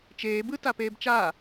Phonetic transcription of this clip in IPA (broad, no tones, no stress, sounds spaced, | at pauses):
t͡ʃ eː b ɯ t a p eː b t͡ʃ a